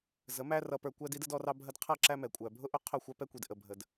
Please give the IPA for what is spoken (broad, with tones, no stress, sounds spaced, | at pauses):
z ə˨˦ m æ˦ r ʌ˧ p ə˞˧ kʷ æ˦ d i˦ d ə˦ d ɔ˦ r ɑ˦ bʱ ə˦ d qʰ ʌ˦˨ ǁ æ˦ m ɛ˨ kʷʼ æ˨ bʱ ʊ˦ ʔ ʊ˦ qʰ ʊ˦˨ xʷ ɑ˦ p ɛ˦ kʷ i˨ d ʔ ə˨ bʱ ə˨ d